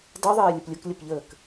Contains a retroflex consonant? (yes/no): no